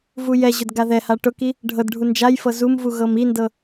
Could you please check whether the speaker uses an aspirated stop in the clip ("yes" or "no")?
no